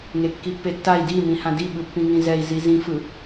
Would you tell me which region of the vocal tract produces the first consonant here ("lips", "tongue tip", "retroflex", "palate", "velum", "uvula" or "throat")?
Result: velum